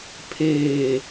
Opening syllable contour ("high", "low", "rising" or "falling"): low